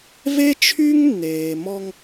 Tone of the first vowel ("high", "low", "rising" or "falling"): high